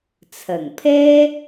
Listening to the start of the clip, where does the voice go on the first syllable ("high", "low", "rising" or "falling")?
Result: low